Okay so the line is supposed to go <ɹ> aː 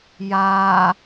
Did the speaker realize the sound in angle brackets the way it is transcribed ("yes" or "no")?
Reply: no